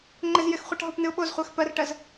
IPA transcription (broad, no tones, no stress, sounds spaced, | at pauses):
ŋ͡ǃ ɪ z j ɪ x χʷ a ʈ ɦ o p n ɨ ʊ̯ ɓ o z χʷ æ x p ɜ r ʈ ɜ z